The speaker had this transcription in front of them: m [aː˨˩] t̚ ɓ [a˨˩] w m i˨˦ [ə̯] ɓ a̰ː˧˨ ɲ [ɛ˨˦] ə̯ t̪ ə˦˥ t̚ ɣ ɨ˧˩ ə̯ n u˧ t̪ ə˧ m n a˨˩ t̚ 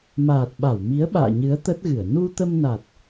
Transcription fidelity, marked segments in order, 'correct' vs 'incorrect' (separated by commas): correct, incorrect, correct, incorrect